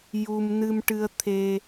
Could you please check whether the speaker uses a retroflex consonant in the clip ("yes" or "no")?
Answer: yes